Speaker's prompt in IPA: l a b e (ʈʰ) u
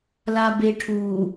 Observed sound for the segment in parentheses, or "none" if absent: ʈʰ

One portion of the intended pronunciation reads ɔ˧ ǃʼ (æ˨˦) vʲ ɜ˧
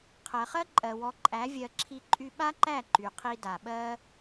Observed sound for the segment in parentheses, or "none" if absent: æ˨˦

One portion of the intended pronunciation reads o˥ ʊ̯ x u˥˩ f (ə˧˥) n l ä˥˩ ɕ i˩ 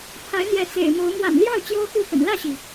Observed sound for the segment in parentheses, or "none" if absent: ə̰˨˩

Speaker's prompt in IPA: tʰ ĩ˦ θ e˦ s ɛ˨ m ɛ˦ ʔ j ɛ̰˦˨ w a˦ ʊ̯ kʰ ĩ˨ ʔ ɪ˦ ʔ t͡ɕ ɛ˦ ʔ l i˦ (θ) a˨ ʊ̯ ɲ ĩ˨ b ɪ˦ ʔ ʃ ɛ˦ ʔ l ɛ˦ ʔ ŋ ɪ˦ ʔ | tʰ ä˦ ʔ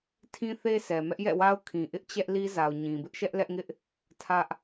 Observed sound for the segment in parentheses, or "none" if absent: z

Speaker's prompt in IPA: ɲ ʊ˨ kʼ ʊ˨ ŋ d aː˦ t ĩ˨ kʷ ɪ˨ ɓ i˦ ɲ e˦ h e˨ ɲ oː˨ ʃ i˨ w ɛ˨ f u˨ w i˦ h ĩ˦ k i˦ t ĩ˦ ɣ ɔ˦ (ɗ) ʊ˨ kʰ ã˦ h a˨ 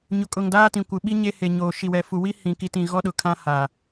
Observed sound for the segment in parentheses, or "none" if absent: ɗ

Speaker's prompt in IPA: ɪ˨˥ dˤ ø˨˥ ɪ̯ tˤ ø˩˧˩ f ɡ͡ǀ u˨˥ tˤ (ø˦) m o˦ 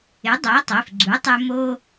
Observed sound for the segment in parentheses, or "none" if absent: ø˦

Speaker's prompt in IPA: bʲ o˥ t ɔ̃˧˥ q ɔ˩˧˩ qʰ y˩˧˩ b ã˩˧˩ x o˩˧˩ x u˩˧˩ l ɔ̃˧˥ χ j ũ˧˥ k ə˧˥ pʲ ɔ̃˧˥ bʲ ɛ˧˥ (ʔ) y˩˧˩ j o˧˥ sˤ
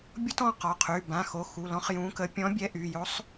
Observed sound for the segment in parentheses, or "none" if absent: ʔ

